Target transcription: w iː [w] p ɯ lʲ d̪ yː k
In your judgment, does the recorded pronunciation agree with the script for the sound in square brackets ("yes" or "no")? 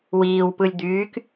yes